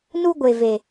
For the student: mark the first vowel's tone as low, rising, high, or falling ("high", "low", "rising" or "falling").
high